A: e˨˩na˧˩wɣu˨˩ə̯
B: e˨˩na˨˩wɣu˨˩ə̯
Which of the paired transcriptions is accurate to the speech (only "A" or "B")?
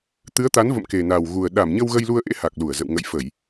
B